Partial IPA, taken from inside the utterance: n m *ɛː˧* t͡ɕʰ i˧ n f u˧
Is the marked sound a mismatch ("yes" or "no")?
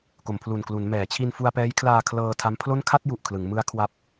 yes